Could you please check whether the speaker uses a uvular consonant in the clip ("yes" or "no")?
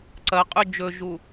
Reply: yes